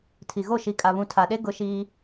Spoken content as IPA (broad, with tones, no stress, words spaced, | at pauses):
tʰi˨ɣo˦˨ ʃi˨kʼa˨βũ˨ tʰa˨ɗe˦ ɡʊ˦ʃiː˦